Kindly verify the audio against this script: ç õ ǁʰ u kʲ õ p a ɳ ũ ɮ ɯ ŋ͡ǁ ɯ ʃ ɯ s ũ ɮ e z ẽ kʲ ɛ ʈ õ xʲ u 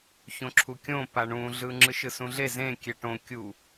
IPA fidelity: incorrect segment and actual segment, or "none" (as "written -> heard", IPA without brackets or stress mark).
xʲ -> kʲ